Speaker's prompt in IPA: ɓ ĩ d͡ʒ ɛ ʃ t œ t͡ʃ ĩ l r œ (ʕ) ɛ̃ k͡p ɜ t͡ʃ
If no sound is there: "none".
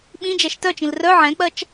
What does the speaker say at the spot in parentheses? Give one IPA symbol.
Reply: ʕ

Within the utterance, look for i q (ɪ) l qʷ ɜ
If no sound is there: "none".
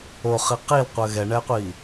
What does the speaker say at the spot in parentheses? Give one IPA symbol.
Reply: i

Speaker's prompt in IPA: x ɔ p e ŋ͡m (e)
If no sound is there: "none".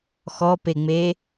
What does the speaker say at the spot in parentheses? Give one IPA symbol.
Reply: e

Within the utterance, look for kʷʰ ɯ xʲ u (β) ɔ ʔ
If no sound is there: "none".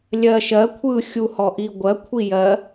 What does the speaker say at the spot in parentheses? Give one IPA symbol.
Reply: h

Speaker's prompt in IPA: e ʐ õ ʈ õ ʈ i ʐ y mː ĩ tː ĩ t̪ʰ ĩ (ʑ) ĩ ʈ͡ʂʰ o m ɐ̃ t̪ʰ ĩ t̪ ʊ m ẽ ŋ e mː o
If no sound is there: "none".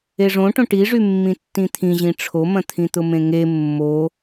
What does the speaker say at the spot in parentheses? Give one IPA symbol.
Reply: ʑ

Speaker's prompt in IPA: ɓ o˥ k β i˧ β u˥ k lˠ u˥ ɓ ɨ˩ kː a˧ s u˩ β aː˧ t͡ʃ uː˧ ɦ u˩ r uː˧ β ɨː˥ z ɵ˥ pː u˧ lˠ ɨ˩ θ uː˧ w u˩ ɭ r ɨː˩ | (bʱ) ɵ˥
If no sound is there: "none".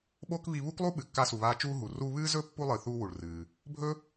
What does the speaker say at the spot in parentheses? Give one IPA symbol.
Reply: bʱ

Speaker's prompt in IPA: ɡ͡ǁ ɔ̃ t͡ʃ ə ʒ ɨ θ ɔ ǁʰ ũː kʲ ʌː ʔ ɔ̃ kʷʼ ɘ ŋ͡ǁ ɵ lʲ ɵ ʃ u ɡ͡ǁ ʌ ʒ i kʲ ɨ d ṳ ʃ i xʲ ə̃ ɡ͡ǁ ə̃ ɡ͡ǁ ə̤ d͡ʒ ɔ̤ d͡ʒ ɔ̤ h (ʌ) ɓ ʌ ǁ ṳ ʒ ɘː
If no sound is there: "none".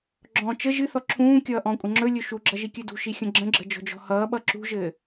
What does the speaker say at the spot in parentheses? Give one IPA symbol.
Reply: ʌː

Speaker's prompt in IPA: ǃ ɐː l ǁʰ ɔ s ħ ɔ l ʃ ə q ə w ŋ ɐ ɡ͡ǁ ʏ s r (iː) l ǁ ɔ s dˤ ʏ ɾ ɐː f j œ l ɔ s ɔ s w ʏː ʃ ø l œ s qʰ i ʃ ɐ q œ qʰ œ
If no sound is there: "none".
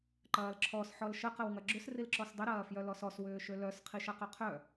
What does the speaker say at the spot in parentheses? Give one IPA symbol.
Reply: i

